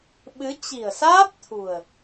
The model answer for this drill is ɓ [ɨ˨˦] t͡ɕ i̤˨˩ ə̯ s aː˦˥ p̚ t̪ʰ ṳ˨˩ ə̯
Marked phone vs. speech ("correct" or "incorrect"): correct